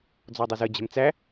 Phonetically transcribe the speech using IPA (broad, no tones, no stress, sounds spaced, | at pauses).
d͡z ɔ dˤ u z ə d͡ʑ ɛ̤ m t͡s æ